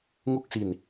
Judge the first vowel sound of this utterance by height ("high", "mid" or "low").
high